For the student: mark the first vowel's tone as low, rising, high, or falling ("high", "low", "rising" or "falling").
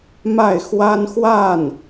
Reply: falling